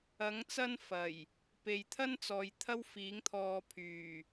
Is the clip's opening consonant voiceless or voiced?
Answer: voiced